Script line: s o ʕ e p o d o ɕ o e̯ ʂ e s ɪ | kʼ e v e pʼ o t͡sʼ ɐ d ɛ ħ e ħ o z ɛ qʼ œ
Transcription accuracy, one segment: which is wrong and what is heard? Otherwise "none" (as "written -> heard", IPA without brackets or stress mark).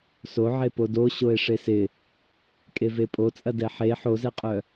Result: none